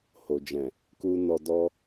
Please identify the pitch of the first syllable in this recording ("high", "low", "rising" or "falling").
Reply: low